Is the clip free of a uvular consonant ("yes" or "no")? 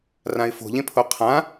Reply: no